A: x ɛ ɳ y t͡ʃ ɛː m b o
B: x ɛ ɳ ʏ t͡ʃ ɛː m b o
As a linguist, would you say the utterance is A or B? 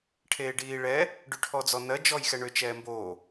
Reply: B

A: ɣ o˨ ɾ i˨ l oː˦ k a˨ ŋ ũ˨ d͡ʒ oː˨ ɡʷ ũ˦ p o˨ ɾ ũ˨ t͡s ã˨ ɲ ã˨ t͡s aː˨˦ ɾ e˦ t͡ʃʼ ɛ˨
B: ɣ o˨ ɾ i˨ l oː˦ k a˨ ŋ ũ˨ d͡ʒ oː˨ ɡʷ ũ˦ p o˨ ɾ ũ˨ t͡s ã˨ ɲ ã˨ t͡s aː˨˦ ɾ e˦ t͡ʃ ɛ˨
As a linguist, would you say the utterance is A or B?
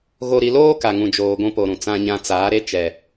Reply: B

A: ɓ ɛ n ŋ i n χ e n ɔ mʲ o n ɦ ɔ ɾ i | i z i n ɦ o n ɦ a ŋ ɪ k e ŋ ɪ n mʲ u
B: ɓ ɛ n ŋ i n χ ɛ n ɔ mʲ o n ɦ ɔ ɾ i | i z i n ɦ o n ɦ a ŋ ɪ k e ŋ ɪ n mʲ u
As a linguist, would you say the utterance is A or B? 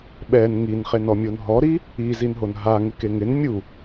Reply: A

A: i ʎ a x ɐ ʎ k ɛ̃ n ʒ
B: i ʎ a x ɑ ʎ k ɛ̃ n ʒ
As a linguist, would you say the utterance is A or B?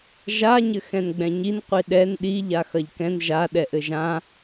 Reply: A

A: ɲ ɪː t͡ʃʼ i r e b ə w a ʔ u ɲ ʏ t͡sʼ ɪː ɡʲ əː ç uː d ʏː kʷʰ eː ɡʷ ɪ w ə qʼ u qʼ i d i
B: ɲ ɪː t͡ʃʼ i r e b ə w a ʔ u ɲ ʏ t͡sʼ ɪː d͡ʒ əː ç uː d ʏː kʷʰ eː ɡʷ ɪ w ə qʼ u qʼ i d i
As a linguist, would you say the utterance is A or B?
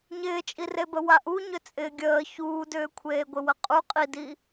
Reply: A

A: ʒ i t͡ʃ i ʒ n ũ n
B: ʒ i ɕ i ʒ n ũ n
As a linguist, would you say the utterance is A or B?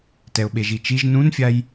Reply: A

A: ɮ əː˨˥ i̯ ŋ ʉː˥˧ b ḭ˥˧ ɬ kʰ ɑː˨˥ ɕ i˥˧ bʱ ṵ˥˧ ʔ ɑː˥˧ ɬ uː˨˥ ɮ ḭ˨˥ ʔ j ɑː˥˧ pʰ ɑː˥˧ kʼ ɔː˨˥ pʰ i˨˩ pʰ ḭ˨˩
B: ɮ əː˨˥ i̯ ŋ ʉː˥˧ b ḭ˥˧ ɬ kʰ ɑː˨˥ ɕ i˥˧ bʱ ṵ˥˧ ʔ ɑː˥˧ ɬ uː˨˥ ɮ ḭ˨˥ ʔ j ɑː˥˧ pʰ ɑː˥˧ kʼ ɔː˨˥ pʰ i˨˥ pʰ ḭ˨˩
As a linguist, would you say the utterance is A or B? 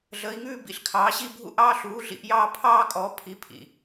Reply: B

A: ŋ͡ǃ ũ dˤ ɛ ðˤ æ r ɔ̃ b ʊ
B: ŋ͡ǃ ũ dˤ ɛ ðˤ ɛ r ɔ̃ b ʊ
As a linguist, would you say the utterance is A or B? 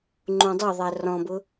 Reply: A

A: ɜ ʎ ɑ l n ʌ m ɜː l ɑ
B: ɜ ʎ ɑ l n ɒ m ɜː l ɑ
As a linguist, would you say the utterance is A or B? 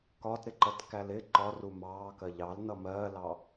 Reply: A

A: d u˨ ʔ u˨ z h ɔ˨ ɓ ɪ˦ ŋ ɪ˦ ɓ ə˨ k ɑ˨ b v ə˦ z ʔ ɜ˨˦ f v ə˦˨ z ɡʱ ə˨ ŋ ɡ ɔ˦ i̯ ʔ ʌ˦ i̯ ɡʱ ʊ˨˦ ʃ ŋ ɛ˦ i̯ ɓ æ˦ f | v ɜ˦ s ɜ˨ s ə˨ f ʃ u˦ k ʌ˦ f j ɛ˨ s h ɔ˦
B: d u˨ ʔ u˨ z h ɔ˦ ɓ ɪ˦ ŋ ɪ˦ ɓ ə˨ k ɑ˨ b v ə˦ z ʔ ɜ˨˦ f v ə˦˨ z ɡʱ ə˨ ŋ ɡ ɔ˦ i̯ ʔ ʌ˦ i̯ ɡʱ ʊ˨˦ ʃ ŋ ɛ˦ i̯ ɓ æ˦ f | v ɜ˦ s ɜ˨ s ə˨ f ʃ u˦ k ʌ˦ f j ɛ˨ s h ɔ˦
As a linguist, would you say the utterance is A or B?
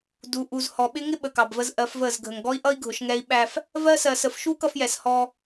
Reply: A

